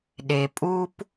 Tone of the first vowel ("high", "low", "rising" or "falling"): low